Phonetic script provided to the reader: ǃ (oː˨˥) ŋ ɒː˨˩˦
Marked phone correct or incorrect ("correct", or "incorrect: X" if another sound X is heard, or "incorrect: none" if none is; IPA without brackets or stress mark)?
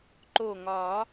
incorrect: oː˧˩